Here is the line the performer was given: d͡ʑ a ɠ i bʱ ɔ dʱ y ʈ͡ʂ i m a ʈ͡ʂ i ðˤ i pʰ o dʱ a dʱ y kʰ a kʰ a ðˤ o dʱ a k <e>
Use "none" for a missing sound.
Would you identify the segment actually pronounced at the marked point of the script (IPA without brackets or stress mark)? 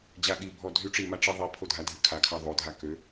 ø